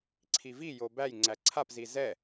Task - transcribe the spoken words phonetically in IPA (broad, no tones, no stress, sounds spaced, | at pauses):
ǀʰ i v i j o b æ j ŋ͡ǀ æ ǀʰ a p z i z ɛ